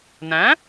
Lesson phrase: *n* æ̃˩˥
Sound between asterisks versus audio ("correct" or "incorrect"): correct